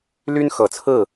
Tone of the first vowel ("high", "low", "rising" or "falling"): high